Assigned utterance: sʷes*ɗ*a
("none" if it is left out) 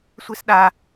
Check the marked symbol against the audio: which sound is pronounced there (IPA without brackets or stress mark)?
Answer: ɗ